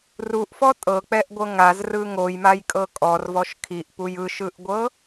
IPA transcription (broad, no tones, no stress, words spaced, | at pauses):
ruʔfɔ tʼɤk͡pɛʔɡʷɤ ŋazrɯ ŋojmajkʼɤ kʼɔrvɔʃ kʰiʔpuj ɯʃɯʔɡʷɤ